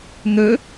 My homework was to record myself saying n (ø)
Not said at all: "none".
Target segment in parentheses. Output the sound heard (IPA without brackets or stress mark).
ø